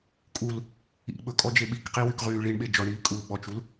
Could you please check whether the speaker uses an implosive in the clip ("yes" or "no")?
yes